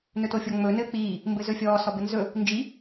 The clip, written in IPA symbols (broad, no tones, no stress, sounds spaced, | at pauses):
n ɵ t o fʲ ɔ ŋ͡m ɵ n ɘː k͡p iː | m b ɘ z ɵ fʲ ɔː s ɔ b ɘ n z ɵ | n d͡ʒ i